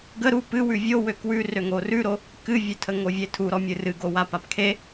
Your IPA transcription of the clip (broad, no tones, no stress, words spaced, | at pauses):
ɡə ɾu pɨwʉ vʲo wøkwʉ røŋorʉɾo | kɨvʲøtʰə ŋovʲetʰu ɾɔmʲɨrɨ ɡowapapkʰe